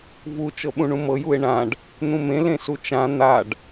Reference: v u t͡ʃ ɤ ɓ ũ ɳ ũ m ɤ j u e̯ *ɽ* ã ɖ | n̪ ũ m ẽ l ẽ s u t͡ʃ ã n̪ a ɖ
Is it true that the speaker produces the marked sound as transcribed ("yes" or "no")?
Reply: no